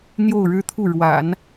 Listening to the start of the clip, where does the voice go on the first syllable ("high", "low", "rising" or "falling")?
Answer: falling